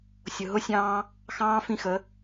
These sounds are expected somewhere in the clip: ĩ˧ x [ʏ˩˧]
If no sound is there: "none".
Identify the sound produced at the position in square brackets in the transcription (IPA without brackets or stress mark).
ə˩˧